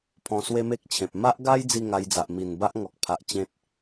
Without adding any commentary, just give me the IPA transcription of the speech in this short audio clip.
pʰɔ̃˧swe˦me˦k̚t͡ɕʰẽ˨p̚ ma˦ʔɡa˦j d͡zi˥˧ŋa˧jd͡za˨ʔ mi˨˩n ba˦ʔŋɔ˨k̚pʰa˨ʔ t͡ɕẽ˦t̚

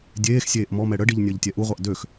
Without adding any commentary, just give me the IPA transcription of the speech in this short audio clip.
dʲeːxsʲeːʔ mɔmɛ ɽəɖiʎ nʲəːʎtʲɛʔuʁʷaʔ døx

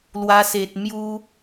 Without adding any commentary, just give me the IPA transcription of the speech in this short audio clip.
lwa˧se˨t̚mju˦

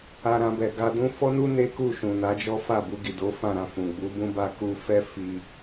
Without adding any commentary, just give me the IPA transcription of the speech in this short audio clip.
a˧ ɾã˧bɛ˨ ɡa˧dũ˦ fɔ˦nu˦ ne˦ku˦˨ʃũ˨ na˨˦d͡ʒɔ˦ fa˦˨bu˧ɡi˨ do˨˦fã˦˨ɾã˧fũ˨ ɡ͡bu˨˦bũ˦ ba˧ku˧fɛ˦ fi˧

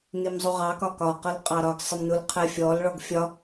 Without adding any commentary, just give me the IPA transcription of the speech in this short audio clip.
nimzˤuʁɑkɒ kɒqʌl qʼɑɾɒɡsˤəmnul qʰɛfʲɔl ɭɔɡfʲɒ

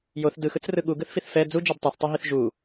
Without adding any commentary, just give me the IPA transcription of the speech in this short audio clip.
joθ dɯxɯt͡srɯ ɠuɡɯθfiθ fɛ d͡zud͡ʒɛb tˤɛθtˤuɦiθ ʒu

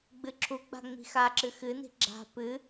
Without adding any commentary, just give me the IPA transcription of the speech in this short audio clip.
ɡ͡bɨǁʰuɡ͡ba̤ ŋ͡mi̤xaǁɨ xɨni̤ ɡ͡ǁa̤ pɨ

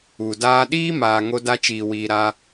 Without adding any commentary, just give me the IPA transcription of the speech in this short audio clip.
u˨ daː˧ɗiː˦maː˨ ŋo˧da˧t͡ʃiː˨wiː˨ ɾa˦

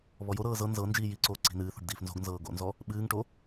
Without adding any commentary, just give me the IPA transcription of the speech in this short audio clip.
βɔjoɾɤː zɤ nzɤ nd͡ʒiːjiǀoː ǀi̤nɨːθo̤ɖ diːfnzo̤ɡnzɤː ɡo̰nzɔ | ɓɨːŋʈo

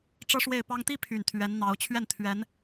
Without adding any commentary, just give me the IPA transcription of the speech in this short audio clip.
ʈ͡ʂɤ˥ʂwe˥˩ɪ̯pɑ˥ŋ t̪i˥ pʰy˨˩nt̪ʰɥɛ˧˥nn̪ɑ˧˥ʊ̯ t͡ɕʰɥɛ˥˩nt̪ʰɥɛ˧˥n

